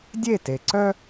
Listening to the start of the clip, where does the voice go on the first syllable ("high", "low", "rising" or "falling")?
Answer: falling